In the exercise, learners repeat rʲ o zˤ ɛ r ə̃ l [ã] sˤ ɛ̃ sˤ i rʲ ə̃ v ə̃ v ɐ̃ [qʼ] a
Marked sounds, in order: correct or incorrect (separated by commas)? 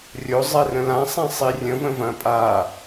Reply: correct, incorrect